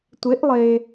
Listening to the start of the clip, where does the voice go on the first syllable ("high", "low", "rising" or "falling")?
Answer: rising